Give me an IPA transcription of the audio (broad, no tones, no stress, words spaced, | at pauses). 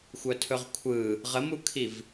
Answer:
xʷœtʰɵʁkʷʰɯ | ʁəmukʰiv